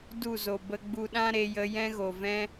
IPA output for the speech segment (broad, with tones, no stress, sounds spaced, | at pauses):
d u˦˨ z o˨ b ə˧ ɡ͡b u˧ ɗ ã˦ ɾ e˧ j ə˧ j ɛ̃˦ ɣ o˨ v ɛ̃˦